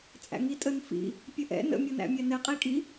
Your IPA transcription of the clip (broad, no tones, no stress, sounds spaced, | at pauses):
t͡sʼ æ̰ ŋ i tʼ ə n f ḭ | pʲ ə ʔ ɛ̰ n ə̰ mʲ ɤ n æ̰ mʲ æ n ɛ qʼ i kʼ i